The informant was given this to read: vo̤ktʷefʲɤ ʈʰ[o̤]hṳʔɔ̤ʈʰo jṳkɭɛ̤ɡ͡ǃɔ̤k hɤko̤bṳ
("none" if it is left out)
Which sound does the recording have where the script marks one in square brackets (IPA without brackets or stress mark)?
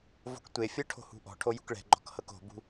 o̤